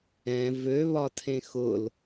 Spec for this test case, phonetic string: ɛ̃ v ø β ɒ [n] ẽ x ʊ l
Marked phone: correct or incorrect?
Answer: incorrect